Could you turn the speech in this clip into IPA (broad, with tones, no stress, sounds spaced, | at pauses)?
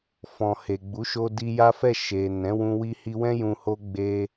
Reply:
f ɔ̃˨ h e˨ ɡ͡b u˨˦ ʃ o˧ d i˧ j a˦ f ɛ˦˨ ʃ e˨ n ɛ̃˨˦ w ũ˧ w i˧ h i˧ w ɛ̃˦ j ũ˧ h o˦ ɡ͡b e˧